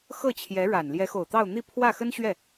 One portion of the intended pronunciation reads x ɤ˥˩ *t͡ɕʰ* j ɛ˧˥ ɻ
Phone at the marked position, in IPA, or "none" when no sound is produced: t͡ɕʰ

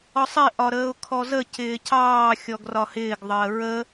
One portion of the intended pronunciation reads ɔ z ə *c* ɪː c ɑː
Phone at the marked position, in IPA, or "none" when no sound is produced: c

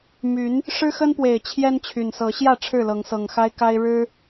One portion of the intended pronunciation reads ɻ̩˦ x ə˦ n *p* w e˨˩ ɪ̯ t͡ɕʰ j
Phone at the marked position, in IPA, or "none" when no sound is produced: p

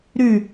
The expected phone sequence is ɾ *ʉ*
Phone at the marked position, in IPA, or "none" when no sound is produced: ʉ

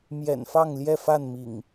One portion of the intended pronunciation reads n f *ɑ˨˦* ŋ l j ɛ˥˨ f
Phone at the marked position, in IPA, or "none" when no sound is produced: ɑ˥˨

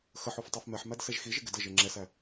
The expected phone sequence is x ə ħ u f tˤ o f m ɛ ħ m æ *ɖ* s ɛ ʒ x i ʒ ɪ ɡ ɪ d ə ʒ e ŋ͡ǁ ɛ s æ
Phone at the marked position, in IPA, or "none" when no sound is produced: d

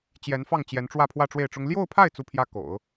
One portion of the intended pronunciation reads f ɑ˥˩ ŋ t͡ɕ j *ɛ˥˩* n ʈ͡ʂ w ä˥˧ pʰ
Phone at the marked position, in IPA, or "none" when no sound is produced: ɛ˧˥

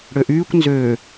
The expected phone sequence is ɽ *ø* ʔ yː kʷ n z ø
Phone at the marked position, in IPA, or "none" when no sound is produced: ø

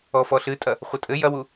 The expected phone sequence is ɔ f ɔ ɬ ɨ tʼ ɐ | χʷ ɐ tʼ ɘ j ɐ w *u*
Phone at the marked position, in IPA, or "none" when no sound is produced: u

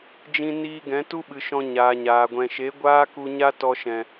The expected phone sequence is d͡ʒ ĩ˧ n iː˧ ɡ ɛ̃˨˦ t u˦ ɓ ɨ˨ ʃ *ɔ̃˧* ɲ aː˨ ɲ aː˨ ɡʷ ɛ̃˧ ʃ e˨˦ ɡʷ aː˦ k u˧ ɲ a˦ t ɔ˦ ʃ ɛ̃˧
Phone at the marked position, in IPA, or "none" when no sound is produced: ɔ̃˧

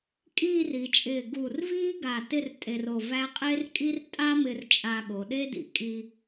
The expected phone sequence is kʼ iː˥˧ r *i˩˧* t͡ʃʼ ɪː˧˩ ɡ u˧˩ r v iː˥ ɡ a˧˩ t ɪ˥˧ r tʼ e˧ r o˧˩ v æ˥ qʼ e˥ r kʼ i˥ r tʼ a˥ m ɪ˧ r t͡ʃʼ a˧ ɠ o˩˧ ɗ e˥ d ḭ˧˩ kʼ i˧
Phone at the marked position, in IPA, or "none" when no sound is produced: i˩˧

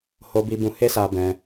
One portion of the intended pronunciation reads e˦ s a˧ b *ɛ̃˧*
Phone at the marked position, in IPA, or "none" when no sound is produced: ɛ̃˧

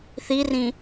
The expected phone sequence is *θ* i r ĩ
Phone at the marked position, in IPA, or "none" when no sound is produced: θ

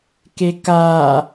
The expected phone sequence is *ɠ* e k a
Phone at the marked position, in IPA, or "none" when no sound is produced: k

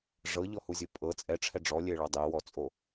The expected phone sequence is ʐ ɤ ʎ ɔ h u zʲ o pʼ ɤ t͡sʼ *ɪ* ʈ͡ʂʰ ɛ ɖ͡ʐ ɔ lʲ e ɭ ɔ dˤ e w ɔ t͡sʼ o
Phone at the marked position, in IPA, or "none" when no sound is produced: ɛ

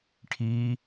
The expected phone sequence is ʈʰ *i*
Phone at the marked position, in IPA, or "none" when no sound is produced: i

